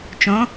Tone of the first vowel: rising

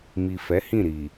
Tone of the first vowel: low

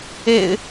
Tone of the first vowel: low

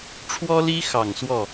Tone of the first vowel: high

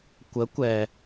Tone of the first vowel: rising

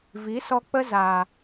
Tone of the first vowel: rising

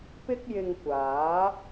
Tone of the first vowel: high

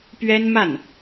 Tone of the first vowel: high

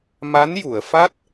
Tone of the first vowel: rising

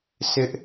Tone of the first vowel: high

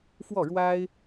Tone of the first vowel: falling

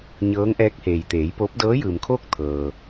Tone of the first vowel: rising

